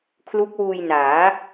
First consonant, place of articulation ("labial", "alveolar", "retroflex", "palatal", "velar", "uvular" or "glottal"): velar